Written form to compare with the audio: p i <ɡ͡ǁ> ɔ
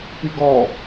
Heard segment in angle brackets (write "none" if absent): ɡ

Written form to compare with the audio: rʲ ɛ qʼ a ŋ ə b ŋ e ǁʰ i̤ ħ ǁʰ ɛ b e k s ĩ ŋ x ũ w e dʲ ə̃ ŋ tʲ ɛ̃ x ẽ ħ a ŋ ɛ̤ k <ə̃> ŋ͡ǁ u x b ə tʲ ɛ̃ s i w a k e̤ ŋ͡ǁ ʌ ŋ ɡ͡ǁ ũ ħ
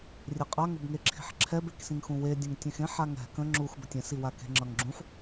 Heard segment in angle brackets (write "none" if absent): ə̃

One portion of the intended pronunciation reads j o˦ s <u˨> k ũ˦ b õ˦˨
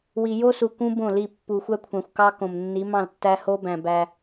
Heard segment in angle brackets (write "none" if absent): u˨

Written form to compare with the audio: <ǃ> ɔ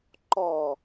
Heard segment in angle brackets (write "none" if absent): ǃ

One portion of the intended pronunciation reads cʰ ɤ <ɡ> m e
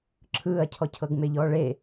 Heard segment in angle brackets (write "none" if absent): ɡ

